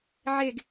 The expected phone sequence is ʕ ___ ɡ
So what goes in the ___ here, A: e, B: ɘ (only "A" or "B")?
A